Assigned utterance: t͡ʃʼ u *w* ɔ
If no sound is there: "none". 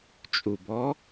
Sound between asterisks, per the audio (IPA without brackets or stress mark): b